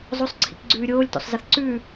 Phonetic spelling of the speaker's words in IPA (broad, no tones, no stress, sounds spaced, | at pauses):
zˤ o sˤ ǀʰ ḭ k ɡ͡ǀ ʉː ɾʲ oː lʲ t o̰ sˤ z ə θ ǀ ʉ